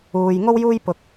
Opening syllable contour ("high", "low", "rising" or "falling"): low